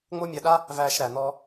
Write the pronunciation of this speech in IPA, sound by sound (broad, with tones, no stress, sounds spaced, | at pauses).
ŋ͡m o˥ mʲ ɜ˧ ɗ a˥ | v æː˧ ʃ ɾ æ˩ n̪ ɔː˧